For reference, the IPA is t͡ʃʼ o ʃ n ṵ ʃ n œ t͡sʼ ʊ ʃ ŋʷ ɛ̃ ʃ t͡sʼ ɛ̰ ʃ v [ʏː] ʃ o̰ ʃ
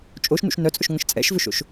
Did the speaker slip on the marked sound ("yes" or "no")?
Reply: yes